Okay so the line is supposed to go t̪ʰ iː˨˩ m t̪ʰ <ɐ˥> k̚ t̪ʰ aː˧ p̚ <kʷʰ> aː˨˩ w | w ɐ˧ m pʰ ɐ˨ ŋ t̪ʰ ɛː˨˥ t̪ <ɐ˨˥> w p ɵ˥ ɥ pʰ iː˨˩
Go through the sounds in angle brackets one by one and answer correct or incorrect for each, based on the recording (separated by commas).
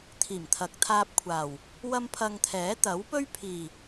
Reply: incorrect, correct, correct